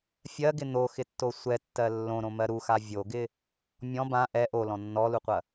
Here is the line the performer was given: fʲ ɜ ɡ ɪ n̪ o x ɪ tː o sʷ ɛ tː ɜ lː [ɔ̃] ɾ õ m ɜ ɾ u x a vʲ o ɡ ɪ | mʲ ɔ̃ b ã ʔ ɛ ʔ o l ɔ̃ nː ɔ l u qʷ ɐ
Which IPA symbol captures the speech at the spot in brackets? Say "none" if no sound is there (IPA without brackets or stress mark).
õ